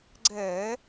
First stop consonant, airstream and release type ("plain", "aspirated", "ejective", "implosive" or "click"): click